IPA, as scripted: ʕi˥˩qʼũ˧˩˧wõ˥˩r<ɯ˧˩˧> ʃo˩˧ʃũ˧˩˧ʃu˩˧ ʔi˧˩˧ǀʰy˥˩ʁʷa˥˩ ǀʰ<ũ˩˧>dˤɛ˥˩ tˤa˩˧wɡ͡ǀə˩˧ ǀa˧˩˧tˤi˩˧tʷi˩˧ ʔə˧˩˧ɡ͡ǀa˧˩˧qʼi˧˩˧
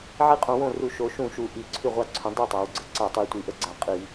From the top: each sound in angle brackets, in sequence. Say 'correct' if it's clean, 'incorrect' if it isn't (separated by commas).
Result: incorrect, correct